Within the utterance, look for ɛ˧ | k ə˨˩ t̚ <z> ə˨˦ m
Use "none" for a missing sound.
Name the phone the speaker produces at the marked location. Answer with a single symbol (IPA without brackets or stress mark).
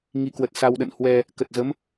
z